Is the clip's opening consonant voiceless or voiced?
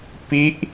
voiceless